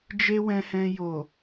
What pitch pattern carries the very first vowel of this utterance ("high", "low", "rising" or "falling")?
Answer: high